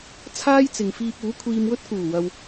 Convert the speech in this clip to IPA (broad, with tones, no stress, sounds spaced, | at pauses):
t͡sʰ aː˥ j t͡s ɪ˨ ŋ f iː˧ p̚ uː˨˥ kʷʰ iː˧ m w ɵ˥ t̚ k uː˨˩ w ɐ˨ w